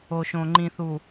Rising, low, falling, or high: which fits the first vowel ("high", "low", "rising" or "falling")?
low